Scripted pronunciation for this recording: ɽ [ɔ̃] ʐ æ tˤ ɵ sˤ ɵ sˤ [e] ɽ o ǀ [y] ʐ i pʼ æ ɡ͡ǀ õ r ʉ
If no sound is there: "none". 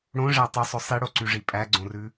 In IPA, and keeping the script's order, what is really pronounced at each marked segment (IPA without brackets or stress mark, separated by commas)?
õ, i, y